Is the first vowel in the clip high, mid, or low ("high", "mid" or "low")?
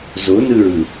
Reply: mid